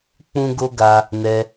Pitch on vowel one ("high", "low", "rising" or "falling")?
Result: high